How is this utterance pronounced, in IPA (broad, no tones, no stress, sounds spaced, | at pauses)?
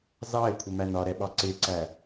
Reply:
z ɑ ɪ̯ kʷʰ ə m æ n ɒ ɾ ɛ ɓ ɑ ǀ ɪ ǀ æ